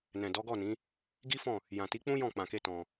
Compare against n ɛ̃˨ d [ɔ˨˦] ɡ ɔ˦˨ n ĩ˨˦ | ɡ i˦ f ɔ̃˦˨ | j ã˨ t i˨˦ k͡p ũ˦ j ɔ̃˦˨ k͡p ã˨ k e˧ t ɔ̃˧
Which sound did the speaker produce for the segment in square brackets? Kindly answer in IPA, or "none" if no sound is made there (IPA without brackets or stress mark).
ɔ˨˦